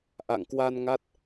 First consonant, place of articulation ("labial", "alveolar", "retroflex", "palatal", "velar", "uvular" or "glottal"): glottal